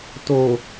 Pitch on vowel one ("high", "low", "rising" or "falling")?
low